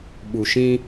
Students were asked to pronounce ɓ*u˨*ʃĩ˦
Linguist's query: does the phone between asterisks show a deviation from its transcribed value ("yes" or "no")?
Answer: no